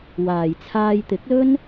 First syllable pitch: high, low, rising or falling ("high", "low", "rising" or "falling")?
low